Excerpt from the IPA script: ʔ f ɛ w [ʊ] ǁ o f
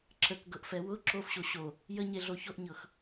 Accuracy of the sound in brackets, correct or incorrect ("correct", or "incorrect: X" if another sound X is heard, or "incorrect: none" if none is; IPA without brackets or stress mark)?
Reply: correct